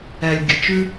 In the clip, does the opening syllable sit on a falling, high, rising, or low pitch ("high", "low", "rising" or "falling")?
low